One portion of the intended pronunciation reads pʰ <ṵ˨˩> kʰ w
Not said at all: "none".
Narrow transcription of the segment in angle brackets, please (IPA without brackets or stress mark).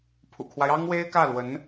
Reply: ṵ˨˩